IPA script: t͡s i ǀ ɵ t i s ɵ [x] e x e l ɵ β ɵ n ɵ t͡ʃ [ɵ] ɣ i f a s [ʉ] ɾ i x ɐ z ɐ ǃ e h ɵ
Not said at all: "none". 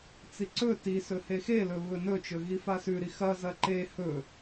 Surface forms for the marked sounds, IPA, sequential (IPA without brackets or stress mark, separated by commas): h, ɵ, ʉ